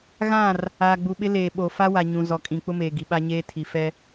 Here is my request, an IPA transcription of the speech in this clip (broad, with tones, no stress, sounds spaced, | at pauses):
ɣ ã˦˨ r | aː˨ ɡ͡b u˨ ɓ ɪ˦ l eː˨ ɓ o˨ f a˦ w a˨ ɲ ũ˨ z ɔ˨ kʼ ĩ˨ k͡p ʊ˦ m eː˨ ɡ i˨ ɓ a˦ ɲ eː˦ tʰ i˨ f ɛ˦